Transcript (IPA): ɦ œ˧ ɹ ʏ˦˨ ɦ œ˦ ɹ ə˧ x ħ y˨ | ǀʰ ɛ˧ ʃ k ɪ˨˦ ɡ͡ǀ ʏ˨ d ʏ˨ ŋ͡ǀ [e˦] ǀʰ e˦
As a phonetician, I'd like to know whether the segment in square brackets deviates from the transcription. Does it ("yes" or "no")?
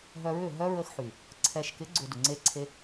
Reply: no